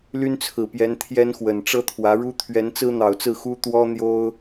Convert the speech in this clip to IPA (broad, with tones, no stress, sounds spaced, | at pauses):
l y˥ n t͡sʰ ɹ̩˨˩ p j ɛ˧˥ n t̪ʰ j ɛ˥ n x w ə˨˩ n ʈ͡ʂ ɤ˥ t̪ʰ w ä˧˥ ɻ u˥ t̪ʰ ɥ ɛ˧˥ n t͡s ɹ̩˥ n̪ ɑ˨˩ ʊ̯ t͡s ɹ̩˥˩ x u˥ t̪ w ɔ˥ n̪ j o˥ ʊ̯